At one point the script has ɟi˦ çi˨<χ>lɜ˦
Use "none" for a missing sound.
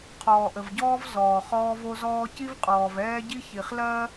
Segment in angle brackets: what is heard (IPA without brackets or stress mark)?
χ